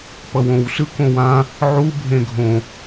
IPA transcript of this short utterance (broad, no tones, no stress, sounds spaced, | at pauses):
p ʌ w õ w s ɯ k õ w ã | ʕ u bʱ ẽ ɡʱ õ